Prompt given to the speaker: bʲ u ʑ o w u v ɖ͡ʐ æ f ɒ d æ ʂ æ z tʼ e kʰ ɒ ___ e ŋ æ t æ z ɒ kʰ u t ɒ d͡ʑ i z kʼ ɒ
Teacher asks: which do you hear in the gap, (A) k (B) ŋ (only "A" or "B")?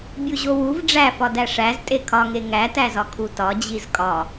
B